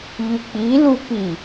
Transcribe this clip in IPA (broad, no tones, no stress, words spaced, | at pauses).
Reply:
ʎʉk͡pilu pi